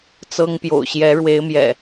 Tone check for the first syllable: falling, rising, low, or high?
high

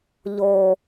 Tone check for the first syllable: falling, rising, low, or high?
low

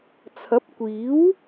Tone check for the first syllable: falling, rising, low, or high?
rising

